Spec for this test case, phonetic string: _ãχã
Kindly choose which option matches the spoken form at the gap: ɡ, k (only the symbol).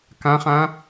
k